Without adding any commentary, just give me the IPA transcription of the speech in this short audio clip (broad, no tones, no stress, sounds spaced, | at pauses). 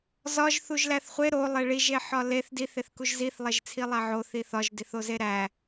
z ɒ ʒ θ u ʒ l æ θ χʷ e ɾ o lˠ e ɭ i ʒ e ħ ɒ l e θ d i θ e θ k u ʒ z i θ lˠ e ʒ t͡sʰ i lˠ æ ʕ o θ i θ ɒ ʒ d i θ o z e ɾ æ